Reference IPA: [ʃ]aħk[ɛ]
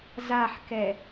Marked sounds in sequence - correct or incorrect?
incorrect: z, correct

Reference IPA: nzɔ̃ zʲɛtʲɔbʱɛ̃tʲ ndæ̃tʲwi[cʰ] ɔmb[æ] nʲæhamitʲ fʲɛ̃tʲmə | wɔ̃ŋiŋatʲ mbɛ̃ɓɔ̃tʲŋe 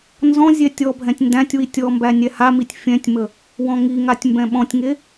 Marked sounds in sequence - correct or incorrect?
incorrect: tʲ, correct

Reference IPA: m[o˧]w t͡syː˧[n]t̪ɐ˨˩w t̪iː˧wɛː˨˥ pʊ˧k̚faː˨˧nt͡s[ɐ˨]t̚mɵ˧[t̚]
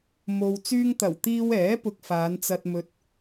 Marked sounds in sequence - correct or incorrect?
correct, incorrect: ŋ, incorrect: ɐ˧, correct

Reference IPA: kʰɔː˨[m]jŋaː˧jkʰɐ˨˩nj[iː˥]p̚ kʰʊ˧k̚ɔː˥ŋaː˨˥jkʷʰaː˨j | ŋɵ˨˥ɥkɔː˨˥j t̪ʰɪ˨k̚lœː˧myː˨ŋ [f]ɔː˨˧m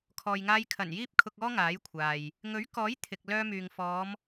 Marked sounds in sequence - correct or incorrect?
incorrect: none, correct, correct

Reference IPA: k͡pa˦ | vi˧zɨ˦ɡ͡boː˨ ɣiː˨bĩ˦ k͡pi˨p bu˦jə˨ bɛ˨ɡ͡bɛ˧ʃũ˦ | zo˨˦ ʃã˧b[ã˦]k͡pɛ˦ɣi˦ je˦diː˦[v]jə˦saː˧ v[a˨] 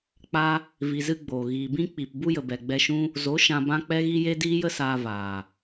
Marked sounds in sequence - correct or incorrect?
correct, incorrect: none, incorrect: aː˨

